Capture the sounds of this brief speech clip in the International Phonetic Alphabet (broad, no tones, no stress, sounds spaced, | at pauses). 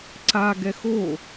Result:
ǀ a ɡ ɛ x o